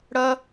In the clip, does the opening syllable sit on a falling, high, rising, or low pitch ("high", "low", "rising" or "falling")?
high